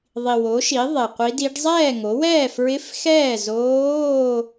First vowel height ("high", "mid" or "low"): high